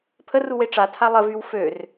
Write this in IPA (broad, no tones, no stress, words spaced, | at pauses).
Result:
pʰəruwe ʈ͡ʂatʰa lˠəvyw før